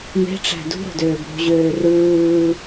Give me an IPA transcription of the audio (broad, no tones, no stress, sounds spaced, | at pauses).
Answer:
m e̤ ʈ͡ʂ æ̤ d ṳ ɾ o̤ d øː b ɾ ṳ ʑ øː r ɯː